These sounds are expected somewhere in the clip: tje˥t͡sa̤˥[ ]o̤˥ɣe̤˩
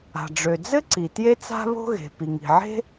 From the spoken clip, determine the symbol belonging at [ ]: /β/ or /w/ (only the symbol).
β